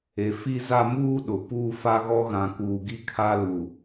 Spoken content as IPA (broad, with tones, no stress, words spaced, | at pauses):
e˨ fi˦za˦ muː˦ɗʊ˨ puː˦fa˦ɣɔ˦ ɣã˨kuː˨ɡi˦kʰa˦ lu˨